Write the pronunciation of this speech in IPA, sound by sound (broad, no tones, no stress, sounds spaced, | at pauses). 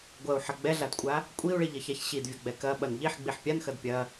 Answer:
ɡʷ ɐ u̯ ħ ɐ ɡ͡b ɛ ɮ a d kʷʼ a | kʷʼ i u̯ ɭ i ʎ ɐ ç a ç ɕ i d vʲ ɐ ɡ͡b ɛ k ɐ ɓ ɐ n ʎ i ħ ɡ͡b i ħ pʲ a n x ɐ d pʲ ɐ